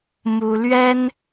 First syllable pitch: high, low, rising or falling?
high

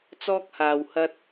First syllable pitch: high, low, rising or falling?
high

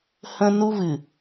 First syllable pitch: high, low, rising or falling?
high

